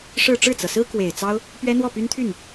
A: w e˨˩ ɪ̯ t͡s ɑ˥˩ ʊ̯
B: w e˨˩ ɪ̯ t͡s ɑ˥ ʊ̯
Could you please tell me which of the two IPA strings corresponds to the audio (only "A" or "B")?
B